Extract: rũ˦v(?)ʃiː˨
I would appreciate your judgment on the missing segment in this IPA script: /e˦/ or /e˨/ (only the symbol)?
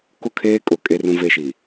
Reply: e˦